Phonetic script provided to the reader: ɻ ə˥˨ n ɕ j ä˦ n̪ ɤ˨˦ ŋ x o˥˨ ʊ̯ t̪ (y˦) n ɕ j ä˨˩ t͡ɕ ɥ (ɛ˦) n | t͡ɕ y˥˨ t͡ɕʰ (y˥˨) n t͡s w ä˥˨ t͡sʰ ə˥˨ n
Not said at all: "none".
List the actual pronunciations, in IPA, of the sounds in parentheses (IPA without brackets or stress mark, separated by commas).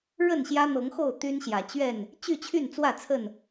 y˦, ɛ˥˨, y˥˨